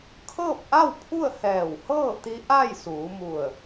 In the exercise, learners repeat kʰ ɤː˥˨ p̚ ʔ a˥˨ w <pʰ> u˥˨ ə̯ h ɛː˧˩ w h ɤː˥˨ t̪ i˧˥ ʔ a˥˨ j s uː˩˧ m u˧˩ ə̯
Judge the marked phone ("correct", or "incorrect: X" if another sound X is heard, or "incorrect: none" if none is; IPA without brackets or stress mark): correct